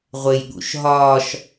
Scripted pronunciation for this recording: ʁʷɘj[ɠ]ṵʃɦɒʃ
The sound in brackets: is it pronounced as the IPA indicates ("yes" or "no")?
yes